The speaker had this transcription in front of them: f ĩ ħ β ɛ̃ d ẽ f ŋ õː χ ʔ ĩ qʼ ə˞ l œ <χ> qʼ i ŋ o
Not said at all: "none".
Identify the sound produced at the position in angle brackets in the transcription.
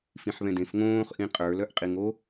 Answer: ʔ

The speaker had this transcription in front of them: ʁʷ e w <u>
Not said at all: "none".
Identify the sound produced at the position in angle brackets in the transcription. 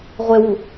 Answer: u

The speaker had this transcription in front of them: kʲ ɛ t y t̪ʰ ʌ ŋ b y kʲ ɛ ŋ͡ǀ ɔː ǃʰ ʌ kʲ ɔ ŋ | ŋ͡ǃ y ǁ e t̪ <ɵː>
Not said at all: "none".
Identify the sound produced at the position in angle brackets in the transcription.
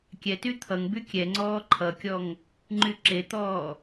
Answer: ɔː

